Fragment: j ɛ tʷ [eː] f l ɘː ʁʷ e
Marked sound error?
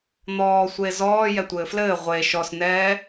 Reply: yes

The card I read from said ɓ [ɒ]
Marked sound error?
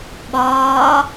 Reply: yes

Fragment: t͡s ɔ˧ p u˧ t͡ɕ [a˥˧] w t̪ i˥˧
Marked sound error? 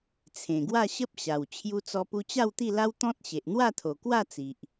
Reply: no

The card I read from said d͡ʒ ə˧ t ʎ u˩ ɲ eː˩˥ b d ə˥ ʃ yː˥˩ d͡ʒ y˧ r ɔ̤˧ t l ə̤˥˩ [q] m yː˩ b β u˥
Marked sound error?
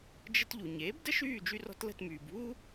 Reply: yes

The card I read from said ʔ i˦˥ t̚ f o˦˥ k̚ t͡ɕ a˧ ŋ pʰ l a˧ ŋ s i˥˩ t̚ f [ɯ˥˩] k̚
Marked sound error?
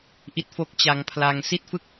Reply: no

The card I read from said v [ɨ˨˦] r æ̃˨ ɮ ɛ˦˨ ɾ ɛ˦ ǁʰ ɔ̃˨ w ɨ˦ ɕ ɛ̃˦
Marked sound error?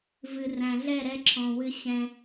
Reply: yes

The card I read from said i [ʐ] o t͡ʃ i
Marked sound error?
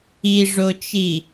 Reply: no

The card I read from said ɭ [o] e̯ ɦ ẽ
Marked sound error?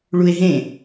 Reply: yes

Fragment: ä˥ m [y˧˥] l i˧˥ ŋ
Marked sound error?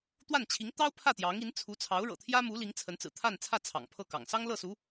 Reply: yes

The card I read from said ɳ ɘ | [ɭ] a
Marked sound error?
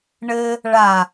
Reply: no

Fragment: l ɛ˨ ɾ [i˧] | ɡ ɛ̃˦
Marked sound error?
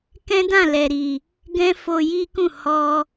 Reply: yes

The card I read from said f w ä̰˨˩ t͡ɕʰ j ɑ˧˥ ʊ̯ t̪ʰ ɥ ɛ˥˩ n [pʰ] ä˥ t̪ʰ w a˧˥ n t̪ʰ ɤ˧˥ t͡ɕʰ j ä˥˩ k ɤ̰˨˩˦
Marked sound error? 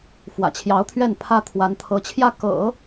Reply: no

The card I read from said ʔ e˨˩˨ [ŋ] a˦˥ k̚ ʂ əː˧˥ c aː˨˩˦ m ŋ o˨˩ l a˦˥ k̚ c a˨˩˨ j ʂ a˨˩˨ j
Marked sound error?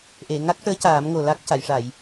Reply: no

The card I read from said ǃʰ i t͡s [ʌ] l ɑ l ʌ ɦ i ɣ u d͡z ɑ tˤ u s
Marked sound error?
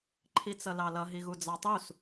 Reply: no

